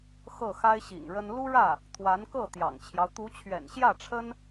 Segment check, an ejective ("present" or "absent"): absent